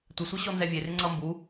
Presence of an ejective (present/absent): absent